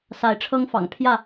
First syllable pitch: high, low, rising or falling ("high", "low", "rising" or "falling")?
rising